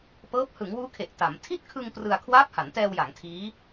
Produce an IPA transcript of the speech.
p ɤː˦˥ p̚ h ɯ˩˦ ŋ w uː˦˥ kʰ e˨˩ ʔ t a˩˦ m tʰ i˥˩ t̚ kʰ ɯ˧ ŋ p r ɯ˧ a̯ kʰ w aː˦˥ p̚ h a˩˦ n t ɛː˧ w j a˩˦ ŋ tʰ iː˦˥

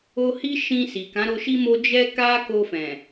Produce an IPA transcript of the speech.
o˧ h i˦ ʃ ĩ˧ s i˨ k ã˨˦ ɾ o˧ ʃ i˦ m o˦ d͡ʒ ɛ˦ k a˦ k o˧ f ɛ̃˨

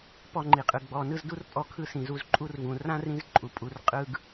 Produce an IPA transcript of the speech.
p ɔ˧ ŋ͡ǃ i˨ qʼ ɯ˨ ɡ͡b ɔ˨ n ɯ˧ z d u˦ r pʼ ɔ˧ kʰ ɯ˧ s ĩ˨ z u˧ z ǃʼ u˦ r v ũ˨ r ã˦ r ĩ˧ z ǃʼ u˨ pʼ u˨ r qʼ ɯ˦ ɡ

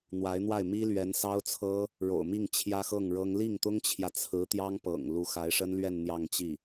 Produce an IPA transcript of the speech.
n̪ w a˧˥ ɪ̯ n̪ w a˥˩ ɪ̯ m i˥ l ɥ ɛ˧˥ n s ɑ˥ ʊ̯ t͡sʰ ɤ˥ | ɻ o̰˨˩ ʊ̯ m i˥˩ ŋ t͡ɕʰ j ä˥ x ɤ˥˩ ŋ ɻ ɤ˥ ŋ l i˥˩ ŋ t̪ ʊ˥ ŋ t͡ɕʰ j ä˨ t͡sʰ ɹ̩˧˥ t̪ j ɑ˥ ŋ p ɤ̰˨˩ ŋ l u˧˥ x a˧˥ ɪ̯ ʂ ə˥ n l ɥ ɛ˥˧ n n̪ j ɑ˥˧ ŋ t͡ɕ i˥˩

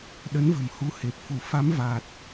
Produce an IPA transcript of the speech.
ɗ ə˨˦ n v ə̤˨˩ m h u˨˦ h e˨˩ p̚ f u˧˩ f a˨˦ m v a˨˩ t̚

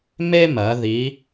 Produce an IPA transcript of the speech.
m e˥ m ɜ˩˧ ð i˩˧

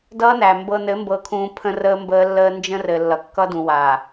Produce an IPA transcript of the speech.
d ʌː˦ n æ˨ m b ɤ˨ n ɘ˨˦ m b ɤ˨ kʰ ũː˨ pʰ ə̃˦ r əː˦ m b əː˦ lː əː˦ n d͡ʒ ə̃˦ r ɘ˨ lː ʌ˨ kː ʌ˦ d ũ˨ w a˨

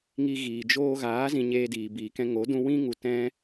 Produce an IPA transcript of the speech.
ŋ i˧ ɣ iː˨ d͡ʒ oː˧ ɣ aː˨˦ z ĩ˧ ɲ eː˧ d iː˨ b iː˨ k ɛ̃˧ ŋ o˨˦ d ũ˧ w ĩ˦ ŋ u˧ t ɛ̃˦

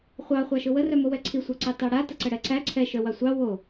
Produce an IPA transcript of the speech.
χʷ ɑ χʷ ɑ ʃ ʊ w ə r œ m o w ɛ ǀʰ i sʷ ɛ ǀ ɑ t ɑ ɽ a t ə ǀ ə ɽ ɛ ǀ æ ǀʰ ɛ ʃ œ w ɑ sʷ ɑ w o

